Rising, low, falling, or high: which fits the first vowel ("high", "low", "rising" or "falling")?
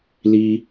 low